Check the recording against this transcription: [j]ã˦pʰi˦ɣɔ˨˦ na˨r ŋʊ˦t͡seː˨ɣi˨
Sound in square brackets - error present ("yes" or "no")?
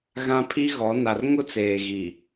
yes